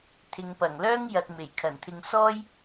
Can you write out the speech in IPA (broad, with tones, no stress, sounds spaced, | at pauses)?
t̪ʰ ɪ˨˧ ŋ p ɐ˨˩ ŋ l œː˥ ŋ j ɐ˨ t̚ m e˨˩ j kʰ ɐ˨˩ n t̪ʰ ɪ˧ ŋ s ɔː˥ j